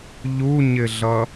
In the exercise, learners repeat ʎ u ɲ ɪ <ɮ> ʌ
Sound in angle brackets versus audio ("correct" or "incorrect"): correct